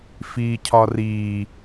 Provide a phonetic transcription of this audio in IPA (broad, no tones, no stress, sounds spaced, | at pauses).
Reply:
f iː cʰ ɒ r iː